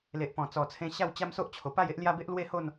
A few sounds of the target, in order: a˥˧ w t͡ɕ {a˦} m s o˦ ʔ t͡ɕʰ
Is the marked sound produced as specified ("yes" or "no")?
yes